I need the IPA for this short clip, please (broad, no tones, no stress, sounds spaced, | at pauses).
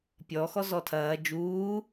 pʲ ɔ x ɔ z ɔ tʰ ɐː d͡ʒ uː